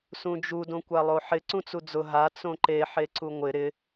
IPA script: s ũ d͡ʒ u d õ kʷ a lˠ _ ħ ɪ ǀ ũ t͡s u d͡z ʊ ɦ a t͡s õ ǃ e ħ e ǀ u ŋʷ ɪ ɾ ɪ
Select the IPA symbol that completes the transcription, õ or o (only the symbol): o